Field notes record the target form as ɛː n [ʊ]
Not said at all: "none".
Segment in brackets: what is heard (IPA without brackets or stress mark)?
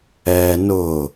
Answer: ʊ